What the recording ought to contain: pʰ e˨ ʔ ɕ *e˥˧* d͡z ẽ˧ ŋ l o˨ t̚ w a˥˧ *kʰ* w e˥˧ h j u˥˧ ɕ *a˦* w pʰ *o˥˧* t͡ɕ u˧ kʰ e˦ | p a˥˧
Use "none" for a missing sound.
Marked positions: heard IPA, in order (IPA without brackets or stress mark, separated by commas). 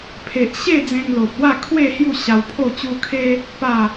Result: e˥˧, kʰ, a˧, o˥˧